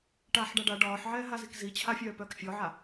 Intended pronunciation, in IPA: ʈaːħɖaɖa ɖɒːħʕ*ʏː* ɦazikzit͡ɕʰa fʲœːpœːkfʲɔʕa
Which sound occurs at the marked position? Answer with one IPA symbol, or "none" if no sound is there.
ɛː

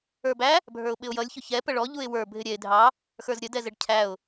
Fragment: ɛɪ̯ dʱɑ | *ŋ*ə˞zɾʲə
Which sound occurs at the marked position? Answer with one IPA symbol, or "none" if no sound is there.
x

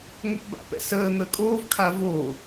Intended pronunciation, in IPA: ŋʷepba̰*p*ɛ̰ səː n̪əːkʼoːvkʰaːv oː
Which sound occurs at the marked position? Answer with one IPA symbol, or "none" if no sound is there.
p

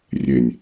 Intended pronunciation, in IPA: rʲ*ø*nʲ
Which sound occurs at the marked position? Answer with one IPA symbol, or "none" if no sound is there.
e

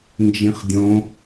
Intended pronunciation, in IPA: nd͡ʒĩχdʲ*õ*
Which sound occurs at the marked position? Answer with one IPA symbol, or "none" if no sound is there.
õ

